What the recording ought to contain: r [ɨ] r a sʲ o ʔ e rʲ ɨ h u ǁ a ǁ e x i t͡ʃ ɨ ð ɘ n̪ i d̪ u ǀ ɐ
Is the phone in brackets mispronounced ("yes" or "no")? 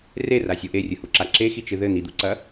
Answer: yes